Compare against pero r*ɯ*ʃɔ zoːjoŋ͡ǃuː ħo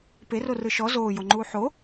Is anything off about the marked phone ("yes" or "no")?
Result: no